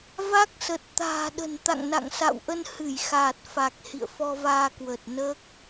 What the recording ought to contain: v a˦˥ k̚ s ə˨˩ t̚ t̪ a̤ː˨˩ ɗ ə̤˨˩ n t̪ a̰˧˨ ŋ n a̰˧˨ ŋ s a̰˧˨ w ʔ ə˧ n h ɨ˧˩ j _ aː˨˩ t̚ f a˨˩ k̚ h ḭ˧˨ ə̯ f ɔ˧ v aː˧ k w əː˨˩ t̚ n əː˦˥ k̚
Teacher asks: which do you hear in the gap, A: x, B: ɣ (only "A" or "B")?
A